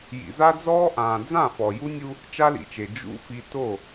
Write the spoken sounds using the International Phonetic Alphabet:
j ḭ˨ z a˦ d͡z ɔː˦ ʔ ãː˨ d͡z ã˦˨ f ɔ˨ j u˦ nʲ u˦ | t͡ʃ a˦ l ḭ˨ t͡ʃ e˨ d͡ʒ ṵ˦ f i˦ t o˦˨

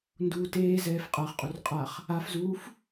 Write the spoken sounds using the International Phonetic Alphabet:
n d uː t eː z ɛː f qʼ a χ qʼ u r qʼ a χ | a f z uː f

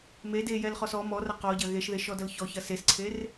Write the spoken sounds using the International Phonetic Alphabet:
m e d e j ɛ l χ ɔ s ɔ m ɔ r ɐ q ɔ ɟ ɐ ɣ e ʃ ð e ʃ ɔ d ɐ l ç ɔ ç ɐ s e s ǀʰ e r

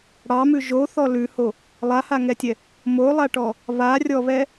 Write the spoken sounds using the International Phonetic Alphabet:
ɽ ɑ m ʉ ʒ o θ ɔ l ʉ h o | lˠ a h a ŋ ɛ tʲ ɛ | m o lˠ a ʈ ɔ | β a rʲ ɔ β ɛ

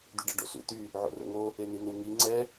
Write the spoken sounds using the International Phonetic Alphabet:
d̪ y ɖ ɛ ɖ o̰ s ṵ t̪ y | ʕ o̰ r o̰ ŋ o | e n̪ i n̪ u ŋ i ŋ͡ǀ ɛ

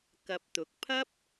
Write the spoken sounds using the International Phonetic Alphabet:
k ɐ˧ p̚ t̪ ʊ˨˥ k̚ pʰ ɐ˥ p̚

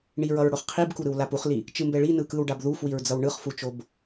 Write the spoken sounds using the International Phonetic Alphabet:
ɳ i ɹ ʌ ɹ ɽ o χ qʰ i b k u ɾ ɯ w l a p u χ l i | t͡ʃ ɯ m b ɛ ɭ i n ɯ k ɯ w ɖ a b ð u f w i ɹ d͡z ʌ w ɳ ɯ χ f u t͡ʃ o b

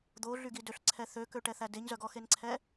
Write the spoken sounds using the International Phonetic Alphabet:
d̪ o ɮ y ɡ i d ø ɬ ǀʰ ɛ θ ø k ø ʈ ɛ θ æ d e ɲ z œ ɡ ɔ x e n ǀʰ ɛ

